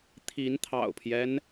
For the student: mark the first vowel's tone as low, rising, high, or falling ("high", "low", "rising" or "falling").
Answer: rising